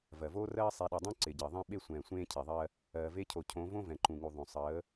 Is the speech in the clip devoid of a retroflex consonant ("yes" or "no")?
yes